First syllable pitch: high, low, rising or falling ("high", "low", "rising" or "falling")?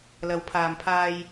rising